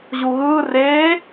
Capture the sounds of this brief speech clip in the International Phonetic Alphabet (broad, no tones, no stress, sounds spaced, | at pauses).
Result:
ʑ u ɣ ɯ r e